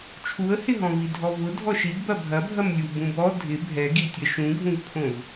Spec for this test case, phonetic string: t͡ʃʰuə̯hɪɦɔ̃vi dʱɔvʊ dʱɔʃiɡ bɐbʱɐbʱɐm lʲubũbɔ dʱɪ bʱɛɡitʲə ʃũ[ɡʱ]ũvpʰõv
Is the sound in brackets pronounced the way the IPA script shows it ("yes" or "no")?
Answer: yes